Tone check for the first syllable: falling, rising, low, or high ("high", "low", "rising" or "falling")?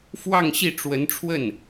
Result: falling